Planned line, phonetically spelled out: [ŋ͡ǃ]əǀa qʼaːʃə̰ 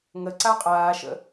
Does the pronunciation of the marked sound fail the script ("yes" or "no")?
yes